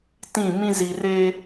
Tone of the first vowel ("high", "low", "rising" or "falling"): falling